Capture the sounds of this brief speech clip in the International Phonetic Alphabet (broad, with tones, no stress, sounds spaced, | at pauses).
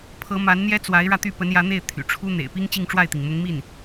pʰ ɤ˧˥ m a˧˥ n n̪ j ɛ˥ t͡s w a˧˥ ɪ̯ ɻ ä˧ t̪ y˥˩ p ə˧˥ n j ä˧˥ n̪ e˥˩ ɪ̯ t̪ʰ y̰˨˩ ʈ͡ʂʰ u˥ n̪ ḛ˨˩ ɪ̯ p i˥ ŋ t͡ɕ i˥˧ ŋ ʈ͡ʂ w a˥˩ ɪ̯ t̪ i˩ ŋ m ʊ˧˥ ŋ m i˥˩ n